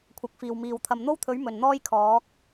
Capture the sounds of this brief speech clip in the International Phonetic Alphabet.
kʷʰ ɐ˨˥ k̚ f iː˨ w m iː˨ w t̪ʰ ɐ˨ m n̪ o˥ w t̪ʰ ɵ˨˥ ɥ m ɵ˨˩ n n̪ ɔː˥ j kʰ ɔː˨˥ k̚

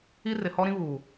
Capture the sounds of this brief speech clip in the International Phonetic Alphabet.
i˦ r ɪ˨ h ɔ˦ ɾ ĩ˦ β u˨

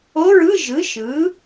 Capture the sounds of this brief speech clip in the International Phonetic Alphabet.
o˧˥˧ ɹ ɯ˧˥˧ ʒ ɯ˩˥ ʃ ɯ˩˥

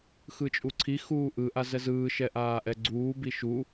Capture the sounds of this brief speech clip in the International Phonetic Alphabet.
x ɯ t͡ʃʼ u ǀʰ i x uː ʔ ɯ ʔ a z ɛ z ɯː ʃ ɛ ʔ aː ʔ ɛ ɡ͡ǀ uː b i ʃ u

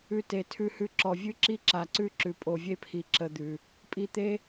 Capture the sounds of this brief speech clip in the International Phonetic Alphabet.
ʉ˧ t e˨ tʰ ʉ˧ h ʉ˧ ǁ ɔ˨ vʲ ʉ˦ ǁ i˦ ǁ a˨ ǀ ʉ˦ ǁ ʉ˨ pʼ o˨ vʲ e˦ pʰ i˨ ǁ ə˧ d̪ ʉ˨ | pʼ i˧ t̪ e˦

